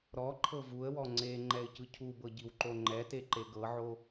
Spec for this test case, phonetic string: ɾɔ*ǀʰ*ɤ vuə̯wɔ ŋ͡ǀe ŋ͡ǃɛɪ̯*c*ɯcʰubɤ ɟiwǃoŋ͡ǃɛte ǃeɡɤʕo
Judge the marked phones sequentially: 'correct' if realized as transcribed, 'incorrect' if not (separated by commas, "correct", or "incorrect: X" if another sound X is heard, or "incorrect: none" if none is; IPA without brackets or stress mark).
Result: incorrect: ǃʰ, correct